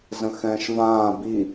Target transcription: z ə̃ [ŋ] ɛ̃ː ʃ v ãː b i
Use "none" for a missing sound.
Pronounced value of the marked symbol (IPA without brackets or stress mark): x